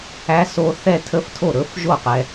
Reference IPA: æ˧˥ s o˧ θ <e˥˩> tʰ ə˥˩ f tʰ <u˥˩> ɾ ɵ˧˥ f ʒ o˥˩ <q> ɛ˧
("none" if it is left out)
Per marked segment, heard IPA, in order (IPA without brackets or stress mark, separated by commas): ɛ˥˩, o˥˩, q